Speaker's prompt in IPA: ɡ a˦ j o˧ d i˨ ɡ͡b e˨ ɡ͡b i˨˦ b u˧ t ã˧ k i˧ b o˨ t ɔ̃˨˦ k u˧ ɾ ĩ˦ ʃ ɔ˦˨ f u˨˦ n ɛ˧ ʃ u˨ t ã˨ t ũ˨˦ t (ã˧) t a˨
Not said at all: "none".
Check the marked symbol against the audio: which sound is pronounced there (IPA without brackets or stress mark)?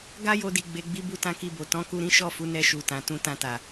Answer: ã˧